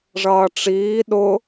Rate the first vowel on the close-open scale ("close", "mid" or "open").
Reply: mid